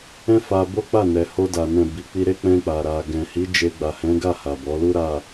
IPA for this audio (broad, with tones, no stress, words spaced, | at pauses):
ɛ̃˦ fa˧ bo˦k͡pa˦˨nɛ˨ ho˧da˨ nɛ̃˨ bi˨k͡pi˧ɾe˦ k͡pɛ̃˧k͡pa˨ɾa˨ ɡɛ̃˨hi˨˦d͡ʒe˧ ɡ͡ba˨hɛ̃˨˦ɡa˦˨ ha˨bɔ˨˦lu˦ ɾa˦˨